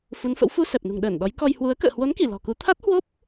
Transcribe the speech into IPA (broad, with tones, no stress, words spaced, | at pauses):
fu˨˦nfə̰˧˥w fu˧ sɛ˨˩p̚nṳ˨˩ŋ ɗəː˧˩n ɗɔ˨˦jkɔ˧j hwu˨˦ə̯ kə̰ː˧˨hwo˨˦nki˧˩ lɔ̤˨˩ku˨˦ t̪ʰa˦˥t̚hwo˦˥p̚